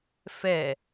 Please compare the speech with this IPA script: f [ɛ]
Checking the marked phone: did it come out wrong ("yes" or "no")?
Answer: no